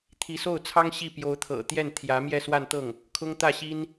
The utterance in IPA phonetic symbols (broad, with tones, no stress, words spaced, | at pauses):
t̪ʰi˧˥so˥˩ʊ̯t͡sʰɑ˥ŋ ɕi˥˩ pjo˧˥ʊ̯t̪ʰɤ̰˨˩ t̪jɛ˥˩n t̪ʰjä˧˥ mjɛ˥˧swa˥˧nt̪ɤ˥˩ŋ | kʰʊ˥ŋ t̪ä˥˩ ɕi˥n